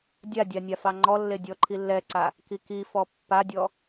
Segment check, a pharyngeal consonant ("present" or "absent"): absent